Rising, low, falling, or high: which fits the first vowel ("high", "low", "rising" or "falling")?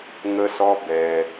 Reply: high